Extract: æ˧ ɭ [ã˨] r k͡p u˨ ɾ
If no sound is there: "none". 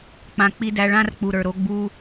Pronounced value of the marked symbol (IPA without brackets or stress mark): ã˦